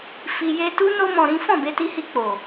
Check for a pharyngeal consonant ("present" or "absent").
absent